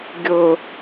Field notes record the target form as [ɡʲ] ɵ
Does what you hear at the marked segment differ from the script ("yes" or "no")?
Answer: no